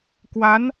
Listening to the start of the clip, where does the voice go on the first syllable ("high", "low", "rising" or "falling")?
rising